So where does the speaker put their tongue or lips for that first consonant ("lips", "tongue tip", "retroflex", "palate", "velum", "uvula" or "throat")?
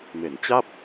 lips